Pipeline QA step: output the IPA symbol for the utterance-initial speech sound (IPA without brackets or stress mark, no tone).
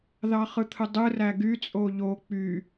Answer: ð